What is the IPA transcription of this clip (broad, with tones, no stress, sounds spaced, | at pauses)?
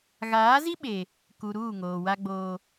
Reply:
ɣ aː˨˦ z i˦ ɓ e˨ | k u˨ ɾ uː˦˨ ŋ oː˨ w a˦ ɡ͡b oː˦